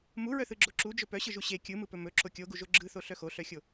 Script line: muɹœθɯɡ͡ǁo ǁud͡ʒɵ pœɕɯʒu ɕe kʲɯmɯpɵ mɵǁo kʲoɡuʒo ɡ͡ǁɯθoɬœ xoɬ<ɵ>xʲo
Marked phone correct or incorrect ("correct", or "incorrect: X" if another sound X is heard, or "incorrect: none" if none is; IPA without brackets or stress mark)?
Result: incorrect: œ